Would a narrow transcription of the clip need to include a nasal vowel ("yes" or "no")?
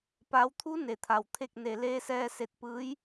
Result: no